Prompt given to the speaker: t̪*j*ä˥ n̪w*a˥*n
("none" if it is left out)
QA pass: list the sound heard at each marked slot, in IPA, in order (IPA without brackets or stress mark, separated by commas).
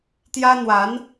j, a˧˥